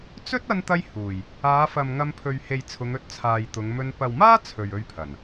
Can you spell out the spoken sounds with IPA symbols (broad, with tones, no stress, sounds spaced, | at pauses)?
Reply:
t͡s ɵ˥ t̚ ɐ˧ n t̪ ɐ˧ j h uː˨˩ j | aː˨˧ f ɐ˨ m ŋ ɐ˧ m pʰ ɵ˨ ɥ h e˨ j t͡sʰ ʊ˨˧ ŋ ɵ˧ t̚ t͡sʰ aː˨ j t̪ ʊ˨˧ ŋ m ɵ˧ n p ɐ˨ w m aː˥ t͡sʰ ɵ˨ ɥ ɵ˧ ɥ pʰ ɐ˨˩ n